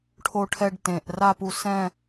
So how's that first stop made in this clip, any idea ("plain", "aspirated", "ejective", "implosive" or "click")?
aspirated